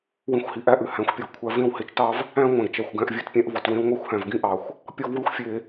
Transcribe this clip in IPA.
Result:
wĩ˧xʷhi˨ʔæ˦ʔʉ˨ hæ̃˨˦xʷpʲɔ˨ɡkʷʰæ˧ vẽ˦˨whe˧t͡ʃtɑ˦v | æ̃˦ŋʷæ̃˨ɡt͡ʃæ˨xʷ ɡæ̃˧ʔvʲʉ˧tpʲæ̃˧ʔvɔ˨t wẽ˧wŋʷæ˧xʷhæ̃˨v ɡĩ˦ʔɑ˨xʷ | pʲɔ˦vwʉ˦xʷfʲe˧

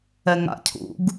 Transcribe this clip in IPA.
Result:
ɛŋa̰cʰṵɡ

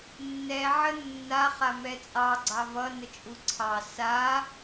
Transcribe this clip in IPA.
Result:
nːɛ ʕənːa χamɛt͡sʼɑ ɡ͡ǀɑvʌ nət͡ʃʼuǀʰɑ sa

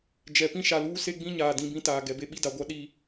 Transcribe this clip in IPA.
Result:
d͡ʒɛ˨ pĩ˦ʃa˨luː˦ se˦ɡ͡bĩ˦ɲaː˨ dĩ˨ bĩ˦taː˨ ɡɛ˨be˦ ɓi˦da˨ɡʷa˦ ɗi˦

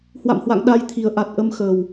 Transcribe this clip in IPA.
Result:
hwa̰˧˨mhwa̰˧˨ŋ ɗa˧jt̪ʰi˨˩ə̯ʔa˨˩t̚ ʔə˧mxəː˨˩w

